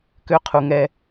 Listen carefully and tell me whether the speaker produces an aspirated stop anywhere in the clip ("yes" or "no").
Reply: yes